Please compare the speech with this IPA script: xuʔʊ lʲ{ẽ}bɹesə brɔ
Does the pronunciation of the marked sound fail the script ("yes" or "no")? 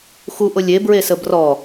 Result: yes